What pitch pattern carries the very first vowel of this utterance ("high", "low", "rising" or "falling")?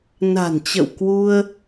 low